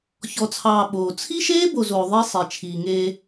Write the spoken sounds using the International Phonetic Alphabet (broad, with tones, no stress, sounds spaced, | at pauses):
ç ɔ˨ t͡sʰ ɑː˨ ɓ oː˨ t͡sʰ i˦ ʃ eː˦ b o˨ z oː˨ ðˤ e˦ sˤ i˨ t͡ʃʰ iː˨ ŋ eː˦